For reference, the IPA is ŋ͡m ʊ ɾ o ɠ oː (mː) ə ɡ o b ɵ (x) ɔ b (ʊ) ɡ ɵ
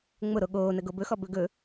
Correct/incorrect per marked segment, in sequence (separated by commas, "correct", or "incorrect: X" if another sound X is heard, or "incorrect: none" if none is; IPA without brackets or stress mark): incorrect: n, correct, incorrect: ɵ